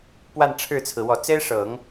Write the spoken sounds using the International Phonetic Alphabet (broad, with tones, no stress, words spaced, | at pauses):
pwa˥˧nʈ͡ʂʰɻ̩˥˩t͡sʰɹ̩˩ wɔ˨˩t͡se˥ɪ̯ʂɤ˨˩˦ŋ